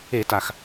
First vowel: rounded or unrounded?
unrounded